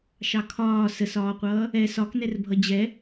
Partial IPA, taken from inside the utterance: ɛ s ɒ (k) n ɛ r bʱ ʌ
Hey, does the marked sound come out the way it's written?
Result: yes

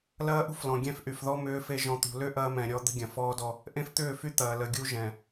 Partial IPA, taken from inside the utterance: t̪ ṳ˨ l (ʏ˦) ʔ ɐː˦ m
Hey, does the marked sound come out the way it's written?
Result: yes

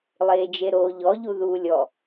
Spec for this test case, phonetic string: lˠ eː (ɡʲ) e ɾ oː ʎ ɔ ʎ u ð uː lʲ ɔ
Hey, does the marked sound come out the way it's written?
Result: no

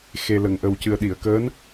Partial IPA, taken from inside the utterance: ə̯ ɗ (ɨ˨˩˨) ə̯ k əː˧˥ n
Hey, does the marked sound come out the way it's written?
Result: no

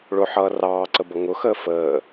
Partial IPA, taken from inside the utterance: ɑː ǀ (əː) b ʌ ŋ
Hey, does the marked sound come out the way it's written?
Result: no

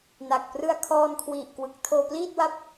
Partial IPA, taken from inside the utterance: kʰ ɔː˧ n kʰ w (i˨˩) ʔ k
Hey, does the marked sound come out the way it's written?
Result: yes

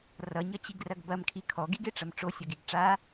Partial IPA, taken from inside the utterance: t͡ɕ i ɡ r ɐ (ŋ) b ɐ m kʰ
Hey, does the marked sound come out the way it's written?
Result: no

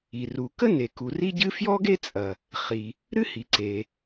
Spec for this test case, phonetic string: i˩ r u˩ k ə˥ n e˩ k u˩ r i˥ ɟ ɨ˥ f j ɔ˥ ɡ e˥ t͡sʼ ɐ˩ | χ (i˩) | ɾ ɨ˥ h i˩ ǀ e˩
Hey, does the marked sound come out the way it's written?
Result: yes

